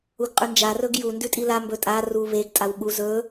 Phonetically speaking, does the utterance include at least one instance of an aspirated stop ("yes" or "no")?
no